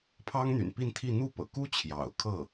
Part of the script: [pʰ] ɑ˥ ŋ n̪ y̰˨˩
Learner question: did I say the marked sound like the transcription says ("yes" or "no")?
yes